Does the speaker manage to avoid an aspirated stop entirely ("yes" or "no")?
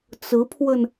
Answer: no